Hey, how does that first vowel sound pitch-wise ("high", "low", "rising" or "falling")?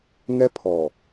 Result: high